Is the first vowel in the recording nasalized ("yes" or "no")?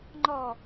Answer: no